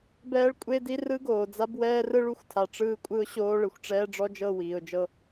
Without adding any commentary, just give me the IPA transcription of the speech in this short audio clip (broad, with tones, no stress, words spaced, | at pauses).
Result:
bɛː˦ɭkʷʼe˦di˦ rɯ˦ɡoː˨d͡za˦b wɛː˦rɯ˦ɭu˦xʷtʰa˨ ʈ͡ʂɯː˦kʷʼɯ˦ʊ̯ ɕoː˦ ɭɯ˨xʷʈ͡ʂɛː˦ɖ͡ʐɔ˦d͡ʒɤ˦˨ wiː˨ʊ̯d͡ʒɤ˦